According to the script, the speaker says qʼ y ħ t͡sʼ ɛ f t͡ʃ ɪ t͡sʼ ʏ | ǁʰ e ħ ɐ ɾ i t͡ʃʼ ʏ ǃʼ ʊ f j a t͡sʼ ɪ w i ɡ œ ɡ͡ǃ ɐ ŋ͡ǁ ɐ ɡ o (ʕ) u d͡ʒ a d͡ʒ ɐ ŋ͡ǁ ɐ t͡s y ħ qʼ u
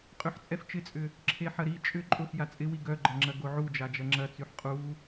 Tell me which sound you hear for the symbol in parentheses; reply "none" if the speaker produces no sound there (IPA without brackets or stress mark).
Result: ʕ